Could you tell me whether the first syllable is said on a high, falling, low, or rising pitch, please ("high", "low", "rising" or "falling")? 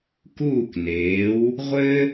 falling